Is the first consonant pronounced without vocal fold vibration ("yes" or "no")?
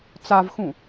yes